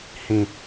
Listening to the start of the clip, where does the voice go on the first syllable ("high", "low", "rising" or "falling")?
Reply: low